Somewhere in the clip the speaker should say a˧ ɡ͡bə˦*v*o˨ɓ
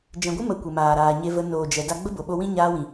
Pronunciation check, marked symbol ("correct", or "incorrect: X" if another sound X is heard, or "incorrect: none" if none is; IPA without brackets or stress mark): incorrect: b